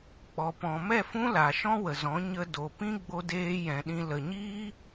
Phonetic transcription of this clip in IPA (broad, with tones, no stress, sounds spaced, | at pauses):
k͡p ɔ˨ p ɔ̃˨ m ɛ˦˨ f ũ˦ l a˨ ʃ ɔ̃˦ w ə˨ z ɔ̃˨˦ ɲ ə˧ d o˨ p ĩ˦ ɡ͡b o˧ d eː˧ j ɛ̃˨ ɗ ĩ˧ l ə˨ ɲ iː˦